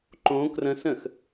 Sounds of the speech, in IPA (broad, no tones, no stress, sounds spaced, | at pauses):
ǃ õ k r ə̃ s ə̃ x